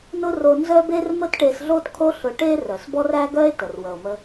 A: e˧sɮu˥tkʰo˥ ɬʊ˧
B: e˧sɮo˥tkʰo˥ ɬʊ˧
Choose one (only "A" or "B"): B